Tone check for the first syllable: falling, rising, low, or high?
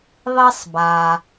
high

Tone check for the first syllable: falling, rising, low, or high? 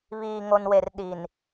low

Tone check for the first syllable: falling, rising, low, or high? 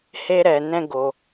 high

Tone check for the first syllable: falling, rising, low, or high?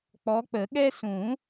rising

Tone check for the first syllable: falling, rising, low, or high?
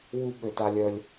high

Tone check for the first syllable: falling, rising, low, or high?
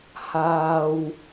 low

